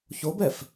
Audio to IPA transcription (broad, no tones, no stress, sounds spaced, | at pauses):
ç o b ɛ f